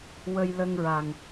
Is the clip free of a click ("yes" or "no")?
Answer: yes